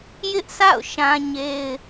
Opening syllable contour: high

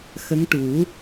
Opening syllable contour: rising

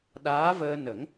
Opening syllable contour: rising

